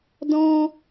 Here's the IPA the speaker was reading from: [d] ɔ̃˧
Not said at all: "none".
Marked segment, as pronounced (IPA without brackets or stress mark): d